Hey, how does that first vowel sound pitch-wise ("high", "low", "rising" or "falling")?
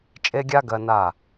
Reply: high